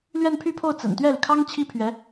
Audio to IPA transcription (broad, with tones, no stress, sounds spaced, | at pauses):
l ɥ ɛ˥˧ n pʰ y˥˧ pʰ o˥˩ ʊ̯ t͡s ə̰˨˩ n t̪ ɥ ɛ˥˩ l y˩ kʰ ɑ˥ ŋ t͡ɕʰ i˥ pʰ ɥ ɛ˧˥